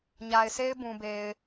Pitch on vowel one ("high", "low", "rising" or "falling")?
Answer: low